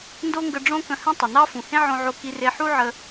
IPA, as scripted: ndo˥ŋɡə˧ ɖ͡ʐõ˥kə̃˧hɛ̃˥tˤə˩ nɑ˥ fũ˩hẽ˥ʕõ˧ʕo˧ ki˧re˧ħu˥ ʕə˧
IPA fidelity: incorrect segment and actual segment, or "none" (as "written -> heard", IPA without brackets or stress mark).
none